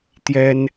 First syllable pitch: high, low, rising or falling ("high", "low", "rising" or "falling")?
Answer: high